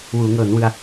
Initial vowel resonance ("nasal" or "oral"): oral